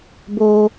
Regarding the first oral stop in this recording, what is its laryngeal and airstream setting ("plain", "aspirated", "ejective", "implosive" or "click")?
plain